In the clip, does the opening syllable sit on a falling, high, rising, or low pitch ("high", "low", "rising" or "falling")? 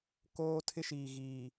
high